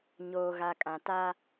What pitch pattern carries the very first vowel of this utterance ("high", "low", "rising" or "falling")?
low